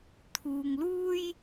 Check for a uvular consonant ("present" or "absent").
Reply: absent